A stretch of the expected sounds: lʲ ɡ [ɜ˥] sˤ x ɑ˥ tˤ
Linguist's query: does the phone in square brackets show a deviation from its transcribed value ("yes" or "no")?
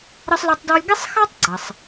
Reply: yes